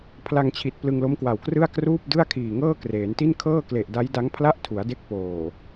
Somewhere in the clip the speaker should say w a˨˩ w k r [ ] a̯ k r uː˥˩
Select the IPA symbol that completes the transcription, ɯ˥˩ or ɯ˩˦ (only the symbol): ɯ˥˩